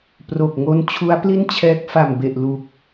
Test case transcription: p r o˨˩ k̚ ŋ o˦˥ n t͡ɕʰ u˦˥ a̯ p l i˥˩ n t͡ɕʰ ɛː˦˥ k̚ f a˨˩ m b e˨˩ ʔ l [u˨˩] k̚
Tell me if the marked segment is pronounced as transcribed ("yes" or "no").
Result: yes